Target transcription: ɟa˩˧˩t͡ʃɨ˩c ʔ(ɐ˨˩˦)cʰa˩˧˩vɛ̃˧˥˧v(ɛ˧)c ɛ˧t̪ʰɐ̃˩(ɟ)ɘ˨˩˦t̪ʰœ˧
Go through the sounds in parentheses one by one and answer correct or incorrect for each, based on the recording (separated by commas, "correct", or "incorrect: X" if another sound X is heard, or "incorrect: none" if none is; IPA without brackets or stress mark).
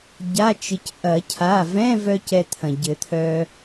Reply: correct, incorrect: œ˧, correct